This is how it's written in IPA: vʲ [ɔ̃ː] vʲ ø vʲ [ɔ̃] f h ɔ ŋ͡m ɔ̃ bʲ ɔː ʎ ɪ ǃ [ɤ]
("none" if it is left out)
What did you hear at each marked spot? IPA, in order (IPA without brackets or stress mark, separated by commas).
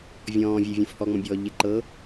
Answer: ɔ̃ː, õ, ɤ